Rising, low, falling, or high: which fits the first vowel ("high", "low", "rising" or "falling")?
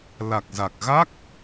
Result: low